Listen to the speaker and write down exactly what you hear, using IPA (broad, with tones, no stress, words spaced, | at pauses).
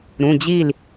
ɾũ˩˧˩d͡ʑi˥˩l